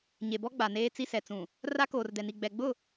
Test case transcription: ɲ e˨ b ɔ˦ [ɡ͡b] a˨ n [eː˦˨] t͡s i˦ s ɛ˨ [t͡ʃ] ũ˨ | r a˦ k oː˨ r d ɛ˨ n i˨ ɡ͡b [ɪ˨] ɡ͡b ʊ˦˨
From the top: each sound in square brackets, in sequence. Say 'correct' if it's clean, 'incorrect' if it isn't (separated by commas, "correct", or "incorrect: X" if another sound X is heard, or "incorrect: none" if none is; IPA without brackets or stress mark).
correct, incorrect: eː˦, incorrect: t͡s, incorrect: ɛ˨